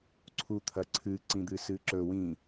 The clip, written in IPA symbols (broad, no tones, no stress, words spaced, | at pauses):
ǀʰut̪ʰɐǀʰɨ ǀĩd̪ɨsɨːǁɵ wĩ